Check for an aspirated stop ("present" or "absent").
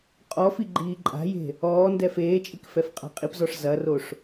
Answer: absent